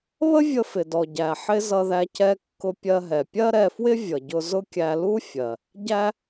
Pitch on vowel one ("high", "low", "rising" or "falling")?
high